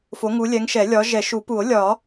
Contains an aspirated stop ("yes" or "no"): no